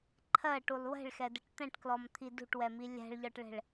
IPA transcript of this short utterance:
ǃʰ ɜ ʈ u lˠ w ɛ̤ ɭ x ɛ d ə ʈ t̪ ɛ̃ ʈ k l ɔ m t̪ʰ i d ṳ ʈ w ɛ m i lʲ æ̤ ɭ ʎ ɒ ʈ ɭ ɛ̤ ɭ

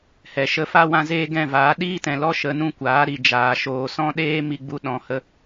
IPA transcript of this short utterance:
h ɛ˨ ʃ ə˧ f a˦ w ã˧ z eː˦ ɡ ɛ̃˦˨ v aː˨˦ ɗ iː˦ t ɛ̃˨ l ɔ˦ ʃ ə˧ n ũ˦ kʷ aː˨˦ ɾ i˨ d͡ʒ aː˨ ʃ oː˨ s ɔ̃˦ ɗ eː˦ m i˧ ɡ͡b u˧ ɗ ɔ̃˨ h ə˧

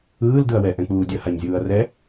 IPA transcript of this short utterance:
ɯː l d ɯ ɐ̯ w ɛ ʔ ɛ̃ k͡p uː dʲ ʌ h a ɲ zʲ uː ɐ̯ r ɛ

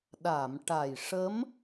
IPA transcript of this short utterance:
ɗ a˨˩˨ m ʈ a˨˩ j ʂ ə˧˥ m

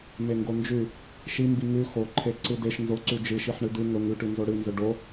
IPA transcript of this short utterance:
m e ŋ ɡ o n d͡ʒ ʉ | ʃ i m b i ŋ ʉ x o ǃʰ e ǀ ɨ d e ʃ n z o ǀ ʉ d͡ʒ ɨ ʃ i ħ ɳ ɨ d̪ ɨ ŋ ɵ ŋ ʉ ʈ ʉ n z o ɽ ɨ n z ɵ ɖ o

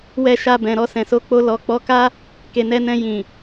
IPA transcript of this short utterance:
w ɛ˧ ʃ a˧ b ɛ̃˨ ɾ ɔ˧ s ɛ̃˨ s o˨˦ k͡p o˧ l ɔ˨ k͡p ɔ˨˦ k a˦ | k e˨ n ɛ˧ n ɛ̃˧ j ĩ˨

